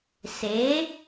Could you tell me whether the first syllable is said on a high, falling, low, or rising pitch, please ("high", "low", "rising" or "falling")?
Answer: rising